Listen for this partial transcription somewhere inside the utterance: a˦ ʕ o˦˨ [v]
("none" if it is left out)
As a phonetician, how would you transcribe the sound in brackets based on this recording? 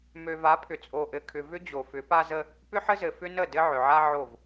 v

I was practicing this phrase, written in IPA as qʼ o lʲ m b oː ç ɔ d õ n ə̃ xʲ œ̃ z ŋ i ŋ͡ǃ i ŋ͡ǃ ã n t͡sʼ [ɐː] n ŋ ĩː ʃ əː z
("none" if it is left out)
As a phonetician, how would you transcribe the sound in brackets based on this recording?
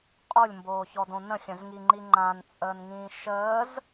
əː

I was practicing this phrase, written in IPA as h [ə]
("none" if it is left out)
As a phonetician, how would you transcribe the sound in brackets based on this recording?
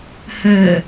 ə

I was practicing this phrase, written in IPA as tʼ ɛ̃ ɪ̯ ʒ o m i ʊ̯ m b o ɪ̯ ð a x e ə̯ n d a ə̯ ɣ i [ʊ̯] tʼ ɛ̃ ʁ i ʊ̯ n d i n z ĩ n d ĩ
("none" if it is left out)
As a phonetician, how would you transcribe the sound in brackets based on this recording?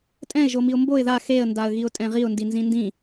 ʊ̯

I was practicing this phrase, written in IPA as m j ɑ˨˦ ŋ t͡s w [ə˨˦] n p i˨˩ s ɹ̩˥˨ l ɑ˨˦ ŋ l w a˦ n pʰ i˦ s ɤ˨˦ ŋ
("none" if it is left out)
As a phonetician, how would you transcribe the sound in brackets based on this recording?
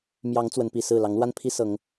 ə˨˦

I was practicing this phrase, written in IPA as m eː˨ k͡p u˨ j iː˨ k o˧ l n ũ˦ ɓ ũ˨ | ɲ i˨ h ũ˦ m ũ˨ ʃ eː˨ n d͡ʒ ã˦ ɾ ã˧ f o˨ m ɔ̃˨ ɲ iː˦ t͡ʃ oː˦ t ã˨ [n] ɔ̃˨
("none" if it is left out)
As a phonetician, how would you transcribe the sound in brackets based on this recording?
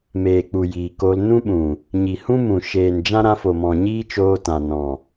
n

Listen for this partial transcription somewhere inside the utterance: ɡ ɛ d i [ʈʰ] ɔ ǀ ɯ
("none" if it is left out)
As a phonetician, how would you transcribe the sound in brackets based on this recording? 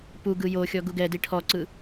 ʈʰ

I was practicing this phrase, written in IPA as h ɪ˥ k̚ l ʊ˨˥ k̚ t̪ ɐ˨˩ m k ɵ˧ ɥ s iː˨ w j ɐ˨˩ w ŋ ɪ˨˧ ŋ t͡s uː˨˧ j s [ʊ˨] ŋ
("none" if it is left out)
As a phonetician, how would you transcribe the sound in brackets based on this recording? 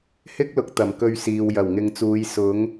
ʊ˨˥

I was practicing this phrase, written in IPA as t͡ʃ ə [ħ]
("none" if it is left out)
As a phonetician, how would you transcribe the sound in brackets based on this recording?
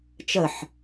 ħ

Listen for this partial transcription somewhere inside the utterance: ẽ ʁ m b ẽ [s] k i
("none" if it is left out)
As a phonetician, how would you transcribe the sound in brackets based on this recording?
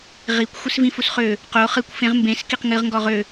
s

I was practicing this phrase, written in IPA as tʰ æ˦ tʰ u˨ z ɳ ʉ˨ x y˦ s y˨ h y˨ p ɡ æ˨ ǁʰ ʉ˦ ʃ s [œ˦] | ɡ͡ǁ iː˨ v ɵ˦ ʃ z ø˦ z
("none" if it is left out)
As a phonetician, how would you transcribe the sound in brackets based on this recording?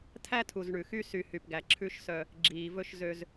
œ˦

